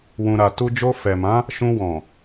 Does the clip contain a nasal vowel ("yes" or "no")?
yes